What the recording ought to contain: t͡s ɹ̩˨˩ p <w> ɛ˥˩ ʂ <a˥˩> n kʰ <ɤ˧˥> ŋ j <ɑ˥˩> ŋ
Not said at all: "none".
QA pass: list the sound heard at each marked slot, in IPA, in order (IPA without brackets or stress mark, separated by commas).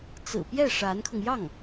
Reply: j, a˧˥, ɤ˧, ɑ˥˩